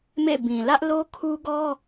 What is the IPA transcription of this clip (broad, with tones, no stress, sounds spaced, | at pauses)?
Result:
m ḛ˦˨ b ĩ˨ l ä˦ ʔ l o˦ kʰ u˦ ɡ ɔ˦